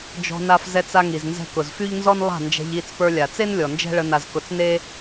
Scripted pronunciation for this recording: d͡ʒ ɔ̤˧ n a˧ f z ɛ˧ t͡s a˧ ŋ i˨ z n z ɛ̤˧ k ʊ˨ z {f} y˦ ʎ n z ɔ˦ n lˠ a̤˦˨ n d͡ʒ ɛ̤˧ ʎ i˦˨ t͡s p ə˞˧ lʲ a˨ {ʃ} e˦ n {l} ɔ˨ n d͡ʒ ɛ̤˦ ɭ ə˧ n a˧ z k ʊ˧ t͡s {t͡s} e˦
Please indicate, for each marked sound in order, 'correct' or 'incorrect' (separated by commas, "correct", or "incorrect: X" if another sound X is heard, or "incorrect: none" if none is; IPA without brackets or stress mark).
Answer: correct, incorrect: t͡s, incorrect: lʲ, incorrect: n